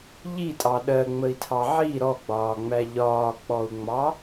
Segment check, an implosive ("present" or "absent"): present